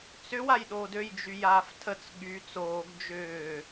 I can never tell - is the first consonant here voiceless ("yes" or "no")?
yes